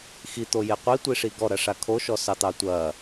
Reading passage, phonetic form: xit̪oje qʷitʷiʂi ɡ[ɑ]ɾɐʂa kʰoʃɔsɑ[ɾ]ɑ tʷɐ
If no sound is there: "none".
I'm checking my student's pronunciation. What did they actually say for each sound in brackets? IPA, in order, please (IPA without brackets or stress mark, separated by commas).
ɔ, t̪